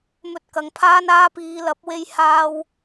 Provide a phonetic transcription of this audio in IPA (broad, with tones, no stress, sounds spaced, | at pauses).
m ɵ˧ t̚ k ɐ˨ ŋ pʰ aː˥ n aː˧ p iː˨˧ l ɐ˨˥ p̚ w e˧ j h aː˥ w